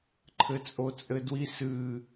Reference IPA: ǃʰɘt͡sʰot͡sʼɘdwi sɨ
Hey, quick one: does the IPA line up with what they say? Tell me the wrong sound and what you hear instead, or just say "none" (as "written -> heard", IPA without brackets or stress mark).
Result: t͡sʰ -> t͡sʼ